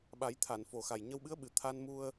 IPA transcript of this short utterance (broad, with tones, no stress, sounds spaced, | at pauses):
ɓ a˨˩˦ j t̪ʰ a˨˩˨ n f o˨˩ x a˨˩ j ɲ ə˧ w ɓ ɨ˧˥ ə̯ ɓ ɨ˨˩ t̪ʰ a˧ n m u˧ ə̯